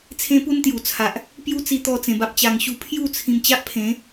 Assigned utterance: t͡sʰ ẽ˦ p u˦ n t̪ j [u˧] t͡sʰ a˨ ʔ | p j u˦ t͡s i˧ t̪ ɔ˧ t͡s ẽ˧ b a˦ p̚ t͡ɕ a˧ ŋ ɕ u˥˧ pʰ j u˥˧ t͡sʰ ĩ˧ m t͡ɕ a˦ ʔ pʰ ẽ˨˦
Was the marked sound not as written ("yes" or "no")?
yes